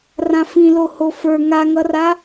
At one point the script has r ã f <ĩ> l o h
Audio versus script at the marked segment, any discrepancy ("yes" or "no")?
no